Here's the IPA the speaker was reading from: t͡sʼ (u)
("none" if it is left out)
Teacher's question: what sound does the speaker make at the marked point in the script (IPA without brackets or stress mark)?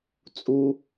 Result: u